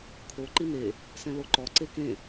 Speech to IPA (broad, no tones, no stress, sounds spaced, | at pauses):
kʰ o ǃ i n e | s ɛ̃ l o ǃ ɔ ǀ e k ẽ